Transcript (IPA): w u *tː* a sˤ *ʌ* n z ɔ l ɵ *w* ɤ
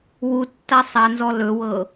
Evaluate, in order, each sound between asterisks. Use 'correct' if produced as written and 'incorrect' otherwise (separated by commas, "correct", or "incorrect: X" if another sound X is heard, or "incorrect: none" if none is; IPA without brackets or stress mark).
correct, incorrect: a, correct